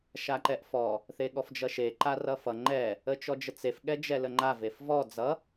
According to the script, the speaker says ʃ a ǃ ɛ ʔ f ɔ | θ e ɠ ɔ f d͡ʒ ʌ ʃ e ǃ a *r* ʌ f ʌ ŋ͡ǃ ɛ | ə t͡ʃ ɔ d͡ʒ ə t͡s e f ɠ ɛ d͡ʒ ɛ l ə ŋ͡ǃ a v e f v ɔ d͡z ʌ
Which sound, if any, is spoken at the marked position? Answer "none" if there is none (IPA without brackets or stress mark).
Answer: r